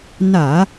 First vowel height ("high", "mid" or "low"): low